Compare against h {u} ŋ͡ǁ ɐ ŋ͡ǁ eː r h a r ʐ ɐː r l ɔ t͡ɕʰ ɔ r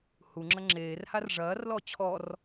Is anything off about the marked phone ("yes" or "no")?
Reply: no